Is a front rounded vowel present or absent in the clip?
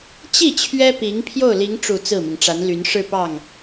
present